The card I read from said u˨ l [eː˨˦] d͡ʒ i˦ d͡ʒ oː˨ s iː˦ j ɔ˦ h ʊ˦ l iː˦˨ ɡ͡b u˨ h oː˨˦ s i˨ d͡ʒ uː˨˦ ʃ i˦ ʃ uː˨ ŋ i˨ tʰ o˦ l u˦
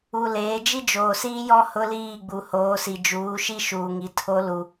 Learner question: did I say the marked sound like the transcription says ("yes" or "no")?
yes